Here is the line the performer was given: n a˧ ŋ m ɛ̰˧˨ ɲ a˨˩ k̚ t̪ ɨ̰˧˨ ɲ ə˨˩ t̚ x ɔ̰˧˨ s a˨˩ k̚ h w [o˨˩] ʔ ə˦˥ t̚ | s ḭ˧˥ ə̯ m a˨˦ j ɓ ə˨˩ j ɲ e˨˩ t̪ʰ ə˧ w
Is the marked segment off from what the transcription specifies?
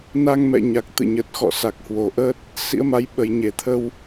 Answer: no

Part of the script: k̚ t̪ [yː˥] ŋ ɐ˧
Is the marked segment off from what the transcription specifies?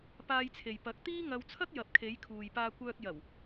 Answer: yes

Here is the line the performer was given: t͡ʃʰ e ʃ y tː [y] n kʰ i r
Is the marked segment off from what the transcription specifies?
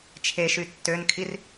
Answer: yes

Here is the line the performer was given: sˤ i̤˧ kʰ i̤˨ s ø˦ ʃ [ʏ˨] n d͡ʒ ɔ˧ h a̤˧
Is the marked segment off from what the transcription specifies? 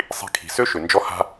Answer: no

